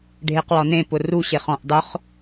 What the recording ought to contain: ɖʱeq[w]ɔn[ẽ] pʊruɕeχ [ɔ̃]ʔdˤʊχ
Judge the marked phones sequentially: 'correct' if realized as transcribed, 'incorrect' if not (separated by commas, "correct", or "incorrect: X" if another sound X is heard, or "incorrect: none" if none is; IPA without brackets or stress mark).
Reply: correct, correct, correct